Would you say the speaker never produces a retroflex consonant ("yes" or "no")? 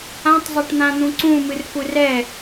no